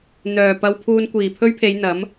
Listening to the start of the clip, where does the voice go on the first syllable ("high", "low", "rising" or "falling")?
low